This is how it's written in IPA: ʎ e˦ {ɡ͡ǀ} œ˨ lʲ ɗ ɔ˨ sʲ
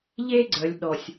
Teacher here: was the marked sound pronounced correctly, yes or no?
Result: yes